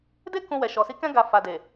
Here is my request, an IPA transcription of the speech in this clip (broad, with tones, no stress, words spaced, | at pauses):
de˦ kũ˧ wɛ˨ʃɔ˨si˧kɛ̃˦ ɡa˧ fa˨de˨